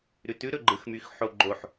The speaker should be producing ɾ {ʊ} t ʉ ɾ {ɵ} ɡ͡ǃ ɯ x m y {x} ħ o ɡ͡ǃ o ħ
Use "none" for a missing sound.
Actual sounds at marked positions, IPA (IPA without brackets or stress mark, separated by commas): ʉ, ɵ, x